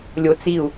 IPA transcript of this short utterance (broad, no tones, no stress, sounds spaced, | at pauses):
lʲ o t͡s i u̯